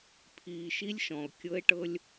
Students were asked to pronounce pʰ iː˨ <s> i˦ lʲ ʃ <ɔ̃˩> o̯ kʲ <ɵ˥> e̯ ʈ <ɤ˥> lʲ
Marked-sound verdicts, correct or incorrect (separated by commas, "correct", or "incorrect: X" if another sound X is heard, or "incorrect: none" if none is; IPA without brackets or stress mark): incorrect: ʃ, correct, incorrect: ɤ˥, correct